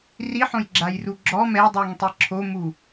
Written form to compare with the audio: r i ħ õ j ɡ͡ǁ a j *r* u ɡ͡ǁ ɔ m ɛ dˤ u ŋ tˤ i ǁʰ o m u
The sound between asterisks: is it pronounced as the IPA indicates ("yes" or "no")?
yes